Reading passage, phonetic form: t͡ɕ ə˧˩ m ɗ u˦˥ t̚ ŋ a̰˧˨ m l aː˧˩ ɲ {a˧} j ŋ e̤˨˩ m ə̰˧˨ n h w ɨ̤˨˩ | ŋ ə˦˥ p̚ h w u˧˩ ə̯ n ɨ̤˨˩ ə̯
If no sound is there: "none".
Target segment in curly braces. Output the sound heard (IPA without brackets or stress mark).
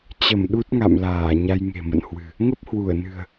a˧